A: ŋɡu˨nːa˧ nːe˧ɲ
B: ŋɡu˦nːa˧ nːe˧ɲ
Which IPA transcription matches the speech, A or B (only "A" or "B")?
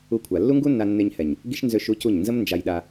B